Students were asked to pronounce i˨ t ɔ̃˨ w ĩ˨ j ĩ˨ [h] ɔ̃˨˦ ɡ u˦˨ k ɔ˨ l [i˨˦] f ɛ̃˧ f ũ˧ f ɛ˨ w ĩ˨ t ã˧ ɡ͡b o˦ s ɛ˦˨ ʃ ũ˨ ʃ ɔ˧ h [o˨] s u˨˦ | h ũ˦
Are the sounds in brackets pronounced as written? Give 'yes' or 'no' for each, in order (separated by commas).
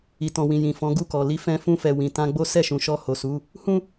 no, yes, yes